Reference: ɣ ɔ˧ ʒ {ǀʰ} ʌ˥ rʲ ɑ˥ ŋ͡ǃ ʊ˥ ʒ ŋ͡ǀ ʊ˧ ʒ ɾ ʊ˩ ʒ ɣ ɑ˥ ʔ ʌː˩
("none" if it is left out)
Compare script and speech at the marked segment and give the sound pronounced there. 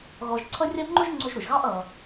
ǀʰ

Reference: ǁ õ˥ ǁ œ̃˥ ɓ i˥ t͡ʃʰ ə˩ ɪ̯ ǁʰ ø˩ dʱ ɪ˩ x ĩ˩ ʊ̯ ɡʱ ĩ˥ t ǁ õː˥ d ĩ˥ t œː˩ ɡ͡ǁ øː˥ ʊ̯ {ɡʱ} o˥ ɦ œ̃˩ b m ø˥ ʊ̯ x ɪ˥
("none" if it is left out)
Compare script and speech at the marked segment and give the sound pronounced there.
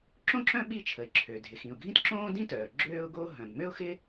ɡ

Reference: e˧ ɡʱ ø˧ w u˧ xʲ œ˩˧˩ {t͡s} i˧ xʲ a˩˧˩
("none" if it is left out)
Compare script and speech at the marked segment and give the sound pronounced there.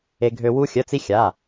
t͡s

